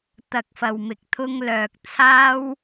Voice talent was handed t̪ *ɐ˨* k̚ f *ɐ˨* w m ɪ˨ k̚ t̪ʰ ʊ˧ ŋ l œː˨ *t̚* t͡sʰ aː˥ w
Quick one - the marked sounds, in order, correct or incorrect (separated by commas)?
correct, correct, incorrect